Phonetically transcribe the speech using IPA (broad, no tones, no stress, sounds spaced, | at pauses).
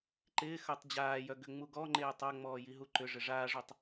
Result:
ǃ ɪː x œ tˤ d͡ʑ aː j œ ɡ ʏ ŋ͡m u ɡ ɔ ŋ͡ǃ eː tˤ a ŋ͡m ɔː j i ɦ u ǃ ʏ ʐ ɪ ʐ aː ʐ ø tˤ